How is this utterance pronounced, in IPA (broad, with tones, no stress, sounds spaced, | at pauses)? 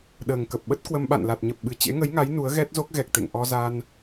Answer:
ɗ əː˨˩ ŋ k ə˨˩ p̚ ɓ ə˦˥ t̚ k w ə˧ m ɓ a̰˧˨ n l a˨˩ t̚ ɲ ə˨˩ p̚ ɓ ɨ˨˩ t͡ɕ ḛ˧˥ ŋ ə˨˦ j ŋ a˨˦ j n u˨˦ ə̯ ɣ ɛ˦˥ t̚ z o˦˥ k̚ ɣ ɛ˨˩ k̚ t̪ ḛ˧˨ ŋ ʔ ɔ˧ z a˧ n